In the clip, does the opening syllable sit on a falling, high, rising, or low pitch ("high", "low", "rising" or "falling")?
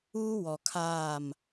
high